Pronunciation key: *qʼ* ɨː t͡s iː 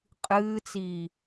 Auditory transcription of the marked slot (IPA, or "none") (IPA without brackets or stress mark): qʼ